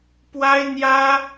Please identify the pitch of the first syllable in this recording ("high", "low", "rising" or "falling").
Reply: high